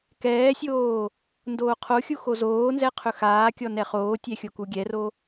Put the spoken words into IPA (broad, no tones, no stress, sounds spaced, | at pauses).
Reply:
k ɛː sʲ oː | n d oː qʰ o xʲ u x o z oː n z ɛ qʰ ɵ x aː kʲ ɔ n ɛ χ oː tʲ ɛ xʲ o k u ɡʲ ɛ r o